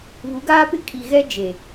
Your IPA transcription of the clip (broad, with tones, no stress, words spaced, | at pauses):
βu˨˦ɡaː˦pɪ˦ kʼi˨ɣɛ˦ d͡ʒe˨